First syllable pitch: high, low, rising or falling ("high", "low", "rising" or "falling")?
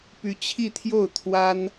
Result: rising